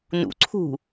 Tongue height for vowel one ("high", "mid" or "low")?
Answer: high